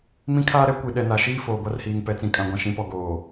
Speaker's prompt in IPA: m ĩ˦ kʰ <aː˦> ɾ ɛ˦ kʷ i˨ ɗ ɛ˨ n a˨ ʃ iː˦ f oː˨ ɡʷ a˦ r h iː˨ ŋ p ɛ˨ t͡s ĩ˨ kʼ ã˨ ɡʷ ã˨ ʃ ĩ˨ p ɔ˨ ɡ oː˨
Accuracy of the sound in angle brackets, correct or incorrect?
correct